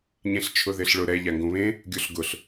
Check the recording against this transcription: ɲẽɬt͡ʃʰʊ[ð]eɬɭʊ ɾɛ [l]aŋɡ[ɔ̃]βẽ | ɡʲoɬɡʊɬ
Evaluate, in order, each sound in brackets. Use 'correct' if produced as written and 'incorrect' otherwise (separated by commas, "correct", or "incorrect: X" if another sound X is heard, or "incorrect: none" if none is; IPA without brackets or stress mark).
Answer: correct, incorrect: ʎ, incorrect: õ